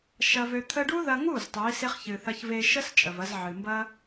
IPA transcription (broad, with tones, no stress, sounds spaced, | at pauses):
ʃ ɐ˧ v ø˧ t̪ʰ ə˦ ɖ u˦ ð ɐ˧ ŋ u˦˨ z tˤ u˨˦ i̯ s e˦ χ ç ɨ˨ θ ɐ˧ ç v e˧ ʃ ə˦ s t͡ʃʼ ə˨ v ɐ˧ z ʕ ɨ˨ m b ɐ˦